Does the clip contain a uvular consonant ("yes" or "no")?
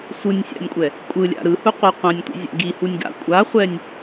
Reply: yes